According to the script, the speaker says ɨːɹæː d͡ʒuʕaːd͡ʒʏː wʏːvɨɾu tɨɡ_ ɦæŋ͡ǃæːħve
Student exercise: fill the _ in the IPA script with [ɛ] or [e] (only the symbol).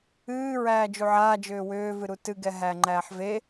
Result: ɛ